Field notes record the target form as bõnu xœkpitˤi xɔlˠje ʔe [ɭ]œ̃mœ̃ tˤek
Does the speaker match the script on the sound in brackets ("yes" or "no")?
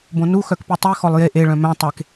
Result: yes